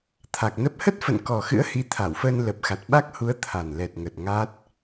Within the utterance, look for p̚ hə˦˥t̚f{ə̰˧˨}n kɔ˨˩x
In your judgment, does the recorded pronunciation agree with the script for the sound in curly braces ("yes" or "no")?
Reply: yes